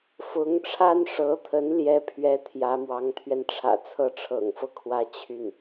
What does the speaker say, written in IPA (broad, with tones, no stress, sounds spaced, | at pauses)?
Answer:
f ʊ˧˥ ŋ ʈ͡ʂʰ a˥ n ʂ ɤ˧˥ t̪ʰ ə˧˥ n l j ɛ˥ pʰ ɥ ɛ˥ t̪ʰ j ä˧˥ m w ɑ˧˥ ŋ t̪ʰ ɥ ɛ˧ n ʈ͡ʂʰ ä̰˨˩ t͡sʰ ɤ˥ ʈ͡ʂʰ ɤ̰˨˩ ŋ f ɤ˥˩ kʰ w ä˥ t͡ɕʰ y˥˩ n